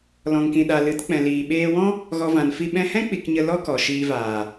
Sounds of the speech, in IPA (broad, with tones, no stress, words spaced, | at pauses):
lɔ̃˨ŋkĩ˨ ɗa˨lɨ˨˦tk͡pɛ̃˨liː˨ ɓeː˧wɔ̃˦ | ɣɔ˧vã˨n fi˧ ɓɛ̃˧hɛ̃˦ k͡pi˧kɲə˧ lɔ˦kɔ˨ʃiː˧vaː˨